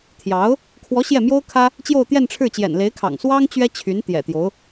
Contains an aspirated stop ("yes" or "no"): yes